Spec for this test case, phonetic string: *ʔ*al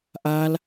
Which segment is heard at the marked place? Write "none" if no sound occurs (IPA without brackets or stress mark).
ʔ